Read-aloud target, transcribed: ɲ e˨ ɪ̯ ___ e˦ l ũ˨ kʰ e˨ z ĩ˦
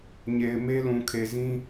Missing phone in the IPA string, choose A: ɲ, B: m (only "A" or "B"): B